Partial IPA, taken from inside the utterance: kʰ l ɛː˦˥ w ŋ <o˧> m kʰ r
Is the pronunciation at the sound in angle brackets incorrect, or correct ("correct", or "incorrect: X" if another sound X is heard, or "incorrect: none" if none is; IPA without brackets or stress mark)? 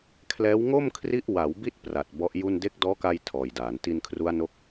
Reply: incorrect: o˥˩